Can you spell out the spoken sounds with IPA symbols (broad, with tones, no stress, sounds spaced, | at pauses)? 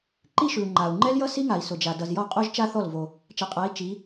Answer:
ǃ i˥˧ ʃ ʉ˨ u̯ ŋ͡ǃ a˨ u̯ ŋ͡ǃ ɛ˥ l j ʌ˥ s i˥ ŋ a˨ i̯ s ʊ˨ d͡ʒ a˨ d ʌ˨ z j ɔ˥˩ qʼ o˥˧ ʒ t͡ʃ a˥˧ θ ɔ˥˩ l v o˨ | t͡ʃ ɛ˨ qʼ a˨˦ i̯ t͡ʃ i˨˦